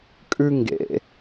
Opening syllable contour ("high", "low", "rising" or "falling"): low